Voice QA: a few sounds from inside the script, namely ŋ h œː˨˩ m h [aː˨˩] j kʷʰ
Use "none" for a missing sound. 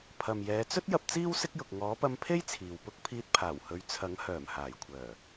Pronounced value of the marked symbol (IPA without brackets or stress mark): aː˨˩